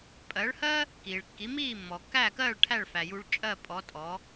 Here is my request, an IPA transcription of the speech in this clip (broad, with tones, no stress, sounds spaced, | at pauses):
pʼ ɜ˩˥ ɭ h ɜ˥ | k iː˩ ɭ kː i˩˥ m iː˥˩ mː ɔ˩ kː æː˥˩ k ɜː˥˩ ɭ ʈʰ æ˥˩ ɭ f æ˩ j u˧ ɭ t͡ʃʼ ɜ˥˩ pʼ ɔ˩˥ tʼ ɔ˩˥